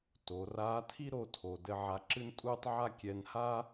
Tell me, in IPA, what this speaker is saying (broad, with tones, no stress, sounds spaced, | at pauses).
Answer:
t o˩˧ r aː˧˥ tʰ i˥ ɾ o˧ tʰ o˩ d ɘ˧ ʕ a˧ ǁ ɨ˥ n tʼ uː˥ tˤ ʕ a˥ kʲ ɛ˧ n h a˥